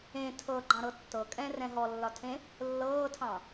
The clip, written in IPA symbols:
ẽ tʰ ɤ ɡ͡ǃ ɑ̃ ɾ ɤ tː ɤ kʼ ɛ̃ r ɛ̃ ɦ ɔ lː ɒ tʰ ẽ | lː ɤː tʰ ɑ̃

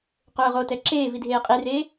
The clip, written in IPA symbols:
q ʊː ʁ o t ɛ ǁ eː v i dʱ eː qʼ i r eː

